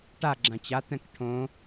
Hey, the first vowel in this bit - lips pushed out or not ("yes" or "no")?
no